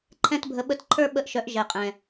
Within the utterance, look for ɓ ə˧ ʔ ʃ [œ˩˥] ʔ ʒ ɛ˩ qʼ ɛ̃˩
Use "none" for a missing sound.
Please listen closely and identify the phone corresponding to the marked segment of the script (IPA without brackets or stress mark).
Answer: œ˩˥